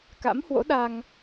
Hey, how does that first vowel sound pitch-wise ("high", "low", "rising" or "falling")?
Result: rising